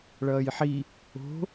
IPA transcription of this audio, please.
ɭ ʌː j ħ i | o̤

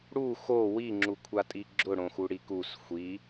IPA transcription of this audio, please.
ɽ u x o w i ŋ͡ǁ u kʷʰ a tʼ i ɡ͡ǁ ʊ ɽ õ x u ɽ i k u s xʷ i

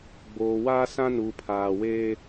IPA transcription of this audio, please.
ɡ͡b oː˨ w aː˦ s ã˦ n uː˨ pʰ aː˨ w eː˦

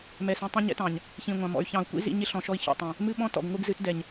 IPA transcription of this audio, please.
m ɛ˨ s ĩ˨ tˤ ĩ˦ ɲ ɛ̰˦ t ɑ̃˨ ɲ | ç ĩ˨ ŋʷ ɑ̃˨ m ɔ̰˨ y̯ ç ɑ̃˨ u̯ kʷ ḭ˦ z ḭ˦ ɲ ɪ˦ ɬ ɔ̃˨ ʃ ɔ˦ i̯ ç ɔ̰˨ tˤ ɛ̃˨ | m ɨ˦ ɓ ɔ̃˦ t ɔ̰˨ ɡ ŋʷ ɨ˦ ɡ z ɨ˦ t d ɛ˨ ɲ

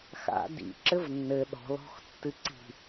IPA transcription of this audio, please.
x a̰ d ḭ ǁ ɘ v nː ɘ ɗ ɔ̤ l ɔ̤ x tː ɨ ǀ i̤

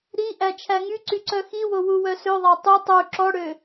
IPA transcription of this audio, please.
ɾ i ʔ æ t͡ʃʰ æ ŋ y ǀ y ǀ œ x i w o w u w œ s ø ðˤ æ tˤ y tˤ u ǁ ɔ ɽ ø

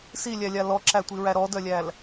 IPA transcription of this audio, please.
s i lʲ æ lʲ a l ɔ ǁ æ tʷ i ɹ æ ɾ ɔ d œ lʲ æ l

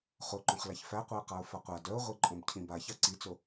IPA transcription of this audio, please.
χ o ǃ õ χ l a ç f æ qʷ œ ə̯ q a ʊ̯ f a qʷ a d œ ʊ̯ ʁʷ i ǃʼ õ b cʰ ĩ b a ç a ǀ i t͡s o

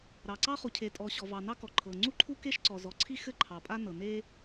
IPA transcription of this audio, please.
ɾ ɑ˩ ǀ ɑ˥ χ u˩ cʰ e˩ tʼ ɔ˩ ɕ ɔ˩ v ɑ˩ n ɑ˥ k ɔ˩ ǃʰ ɤ˩ ŋ͡ǀ u˥ ǃʰ u˥ k e˥ ʃ ǀ ɔ˩ z ɔ˩ ǀʰ i˥ x ɘ˥ ǃʰ ɑ˩ pʼ a˥ n ɤ˩ n e˥

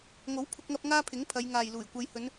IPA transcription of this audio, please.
ŋ o˨˥ w pʰ ʊ˧ k̚ ŋ ɐ˧ p̚ ŋ aː˥ pʰ ɪ˨˥ ŋ pʰ ɐ˨˧ j ŋ aː˨ j l uː˨˩ j kʷ ɐ˨˧ j h ɵ˨˧ n

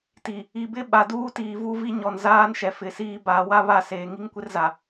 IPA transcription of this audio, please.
t i˨ | i˨ b ɪ˦ ɓ a˨ d uː˦ t iː˨ v u˦ v i˦ ɲ ɔ˨ n z aː˦ n ʃ ɛ˨ f ɪ˨ s iː˦ b a˨˦ w a˦ β a˦˨ s eː˨ ŋ i˦ ŋ kʷ ɪ˦ r z a˨

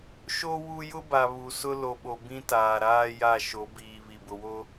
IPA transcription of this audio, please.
ʃ o˦ w u˦ j ʊ˦ b a˨ β u˨ s ʊ˦ l o˨ ɓ o˨ b ĩ˦ t aː˨ ɾ aː˦ j a˦˨ ʃ o˨˦ b iː˨ β i˨ b ʊ˨ w o˦

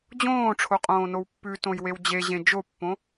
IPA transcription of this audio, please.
d͡ʑ õː ʈ͡ʂʰ o qʼ õː n o w pː ʉ t õ j w e w d͡ʑ e ʑ ẽ d͡ʒ o pː õ

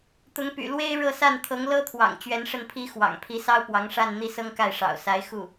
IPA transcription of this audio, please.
t̪ ʊ˧˥ ŋ p y̰˨˩ l w e˥ ɪ̯ ɻ ɤ˥˧ s a˥˩ n t̪ʰ ɤ˧˥ ŋ l ɤ˥ t̪ʰ w ɑ̰˨˩ ŋ t͡ɕ ɥ ɛ˧˥ n ʂ ə˥˩ n pʰ i˥ x w ɑ̰˨˩ ŋ pʰ i˧˥ s ɑ˥ ʊ̯ p w ɑ˧˥ ŋ ʂ a˥˧ n n̪ i˥˩ s ɤ˥ ŋ k a˥˩ ɪ̯ ʂ ɑ̰˨˩ ʊ̯ s a˧˥ ɪ̯ x u˥˩

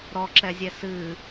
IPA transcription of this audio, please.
ɾ ɔ ǁ ɛ zʲ ɛ s ɨ

